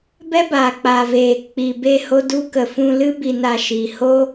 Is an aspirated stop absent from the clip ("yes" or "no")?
yes